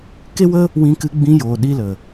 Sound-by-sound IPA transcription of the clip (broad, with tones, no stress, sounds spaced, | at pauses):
k e˦ w ə˦ | w ĩ˧ k ɨ˧ ɡ͡b ĩ˧ j oː˨ ɗ i˧ l ə˨